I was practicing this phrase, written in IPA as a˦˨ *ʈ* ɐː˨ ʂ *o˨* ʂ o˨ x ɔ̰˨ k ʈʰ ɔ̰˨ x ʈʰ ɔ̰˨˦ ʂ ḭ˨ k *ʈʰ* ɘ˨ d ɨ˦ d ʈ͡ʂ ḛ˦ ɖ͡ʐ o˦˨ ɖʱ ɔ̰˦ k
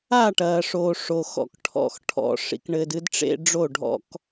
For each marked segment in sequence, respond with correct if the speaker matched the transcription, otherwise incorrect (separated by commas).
correct, correct, incorrect